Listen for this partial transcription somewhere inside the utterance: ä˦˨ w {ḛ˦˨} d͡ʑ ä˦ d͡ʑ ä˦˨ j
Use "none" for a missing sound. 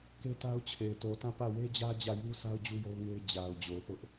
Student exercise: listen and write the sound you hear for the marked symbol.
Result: e˦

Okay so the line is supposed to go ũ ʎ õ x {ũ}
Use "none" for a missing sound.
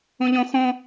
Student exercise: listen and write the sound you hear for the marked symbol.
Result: õ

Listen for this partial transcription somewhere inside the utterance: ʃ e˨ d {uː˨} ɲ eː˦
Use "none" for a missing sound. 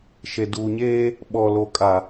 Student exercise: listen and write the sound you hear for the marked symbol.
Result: uː˨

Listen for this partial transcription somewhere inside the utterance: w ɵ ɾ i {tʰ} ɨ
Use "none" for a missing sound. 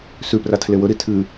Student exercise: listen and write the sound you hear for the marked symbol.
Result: tʰ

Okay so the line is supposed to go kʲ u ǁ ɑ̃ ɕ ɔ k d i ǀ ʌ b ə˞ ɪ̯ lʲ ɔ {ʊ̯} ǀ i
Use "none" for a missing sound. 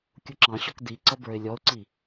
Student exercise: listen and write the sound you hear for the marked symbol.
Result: ʊ̯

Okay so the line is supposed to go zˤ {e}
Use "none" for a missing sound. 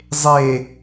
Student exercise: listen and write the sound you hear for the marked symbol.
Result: e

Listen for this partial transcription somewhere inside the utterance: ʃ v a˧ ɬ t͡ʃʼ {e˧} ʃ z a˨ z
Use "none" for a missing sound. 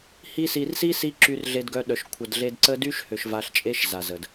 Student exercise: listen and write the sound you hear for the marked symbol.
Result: e˦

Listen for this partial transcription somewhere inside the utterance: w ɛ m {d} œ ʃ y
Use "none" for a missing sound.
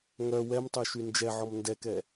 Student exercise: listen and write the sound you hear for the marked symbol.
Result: tˤ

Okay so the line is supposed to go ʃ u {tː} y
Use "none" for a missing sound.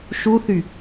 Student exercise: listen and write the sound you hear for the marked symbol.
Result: θ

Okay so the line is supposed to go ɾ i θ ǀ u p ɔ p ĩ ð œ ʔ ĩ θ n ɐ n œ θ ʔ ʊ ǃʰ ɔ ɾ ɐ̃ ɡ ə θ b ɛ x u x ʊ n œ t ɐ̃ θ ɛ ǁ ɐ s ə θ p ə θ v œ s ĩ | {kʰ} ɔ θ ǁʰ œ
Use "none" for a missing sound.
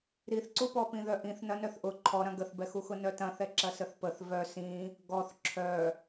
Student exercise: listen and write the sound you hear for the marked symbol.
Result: ɡ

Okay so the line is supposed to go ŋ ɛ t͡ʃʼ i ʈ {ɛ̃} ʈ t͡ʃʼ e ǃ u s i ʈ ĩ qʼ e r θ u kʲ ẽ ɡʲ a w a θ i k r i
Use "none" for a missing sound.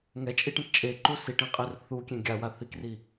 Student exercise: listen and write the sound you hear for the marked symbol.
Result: ɛ̃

